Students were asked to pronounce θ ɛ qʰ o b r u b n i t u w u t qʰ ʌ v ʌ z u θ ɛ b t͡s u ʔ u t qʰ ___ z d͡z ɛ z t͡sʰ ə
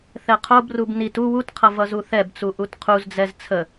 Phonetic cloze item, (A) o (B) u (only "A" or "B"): B